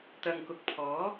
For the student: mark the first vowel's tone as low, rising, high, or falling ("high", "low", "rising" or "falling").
low